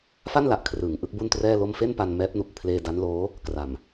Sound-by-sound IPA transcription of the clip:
f a˥˩ n l a˨˩ ʔ kʰ r ɯː˩˦ ŋ ʔ ɯ˦˥ k̚ b u˥˩ n t r ɛː˥˩ l o˥˩ m f e˥˩ n p a˧ n m ɛː˦˥ p̚ n u˨˩ k̚ pʰ l eː˧ d a˦˥ n l oː˦˥ | k r a˨˩ m

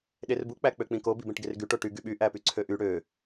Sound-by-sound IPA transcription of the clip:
ɗ e r b u k͡p æ k͡p ø k͡p ĩ k o b i b ẽ ʈ ɡ e r ɡ y ʈ o ʈ y ɡ y ɓ y ʔ æ p y ǀʰ ø ʔ y ɽ ø

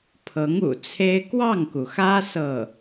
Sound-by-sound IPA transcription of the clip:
pʰ ɤ˧˥ ŋ ṵ˨˩ t͡sʰ e˥ ɪ̯ k w ɑ˥˩ ŋ k u˩ x ä˥ s ɤ˥˩

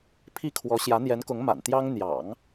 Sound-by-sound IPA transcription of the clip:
pʰ i˥ kʰ w ɔ˧˥ ɕ j ä˧˥ n̪ j ɛ˧˥ n k ʊ˧˥ ŋ m a̰˨˩ n t̪ j ɑ˥ ŋ n̪ j ɑ̰˨˩˦ ŋ

